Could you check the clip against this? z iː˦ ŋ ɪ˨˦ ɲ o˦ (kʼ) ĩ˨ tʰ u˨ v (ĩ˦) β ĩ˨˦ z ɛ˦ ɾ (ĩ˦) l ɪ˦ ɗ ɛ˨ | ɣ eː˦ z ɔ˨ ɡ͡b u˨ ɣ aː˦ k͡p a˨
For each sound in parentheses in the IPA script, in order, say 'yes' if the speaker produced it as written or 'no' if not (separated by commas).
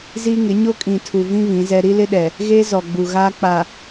yes, yes, no